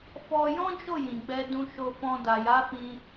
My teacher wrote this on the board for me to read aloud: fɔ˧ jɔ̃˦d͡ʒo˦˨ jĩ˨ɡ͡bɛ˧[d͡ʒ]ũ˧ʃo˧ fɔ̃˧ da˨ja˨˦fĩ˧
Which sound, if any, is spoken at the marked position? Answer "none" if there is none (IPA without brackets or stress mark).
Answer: d